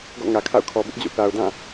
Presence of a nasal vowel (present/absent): present